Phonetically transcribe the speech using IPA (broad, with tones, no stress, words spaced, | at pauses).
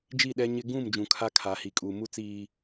d͡ʒi˦˨ɗɛ˦ɲɪ˦ ɡũ˦˨m d͡ʒũ˨kʰa˦ kʰa˨˦hi˨kʼu˨ mu˦t͡siː˨